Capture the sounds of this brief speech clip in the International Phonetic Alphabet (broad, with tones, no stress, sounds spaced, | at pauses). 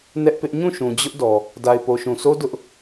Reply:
n ɛ˦ ʔ p ɪ˦ ʔ ɲ ũ˦˨ ʃ ũ˨ d͡ʑ ʊ˦ ʔ d ɔ˨ | d a˨ ɪ̯ p o˨ ʃ ũ˨ sʰ o˦ d ʊ˦ ʔ